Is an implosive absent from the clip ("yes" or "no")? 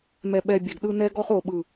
no